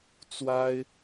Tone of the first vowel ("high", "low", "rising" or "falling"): high